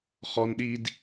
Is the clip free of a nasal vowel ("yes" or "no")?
yes